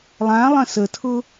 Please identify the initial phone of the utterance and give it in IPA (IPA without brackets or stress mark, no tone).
lˠ